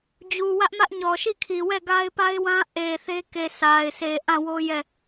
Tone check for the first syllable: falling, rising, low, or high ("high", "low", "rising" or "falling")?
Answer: low